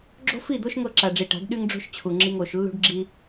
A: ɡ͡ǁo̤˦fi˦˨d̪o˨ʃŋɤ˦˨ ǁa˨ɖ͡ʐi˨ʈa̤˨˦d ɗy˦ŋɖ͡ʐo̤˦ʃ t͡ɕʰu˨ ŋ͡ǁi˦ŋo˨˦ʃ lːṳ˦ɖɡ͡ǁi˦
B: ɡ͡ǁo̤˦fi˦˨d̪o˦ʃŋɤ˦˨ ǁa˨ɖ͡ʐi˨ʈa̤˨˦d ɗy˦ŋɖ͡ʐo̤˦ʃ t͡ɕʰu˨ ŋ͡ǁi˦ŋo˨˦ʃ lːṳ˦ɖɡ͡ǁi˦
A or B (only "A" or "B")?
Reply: B